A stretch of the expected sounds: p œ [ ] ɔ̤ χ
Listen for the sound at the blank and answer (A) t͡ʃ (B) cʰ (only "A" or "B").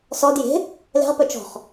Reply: A